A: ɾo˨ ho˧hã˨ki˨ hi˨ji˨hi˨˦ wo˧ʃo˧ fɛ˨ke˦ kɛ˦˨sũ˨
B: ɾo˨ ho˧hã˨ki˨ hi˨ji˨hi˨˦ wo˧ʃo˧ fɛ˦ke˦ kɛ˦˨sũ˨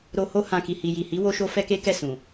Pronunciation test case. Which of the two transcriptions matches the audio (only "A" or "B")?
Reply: B